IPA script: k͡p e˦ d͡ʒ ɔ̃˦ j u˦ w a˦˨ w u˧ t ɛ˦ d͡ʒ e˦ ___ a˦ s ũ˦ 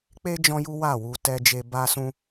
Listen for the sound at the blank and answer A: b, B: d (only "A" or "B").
A